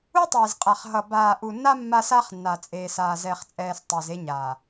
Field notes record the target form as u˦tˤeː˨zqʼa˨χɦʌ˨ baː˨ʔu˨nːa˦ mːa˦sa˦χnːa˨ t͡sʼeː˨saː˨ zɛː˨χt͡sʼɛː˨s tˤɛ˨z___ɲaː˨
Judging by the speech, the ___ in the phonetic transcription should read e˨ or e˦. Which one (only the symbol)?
e˦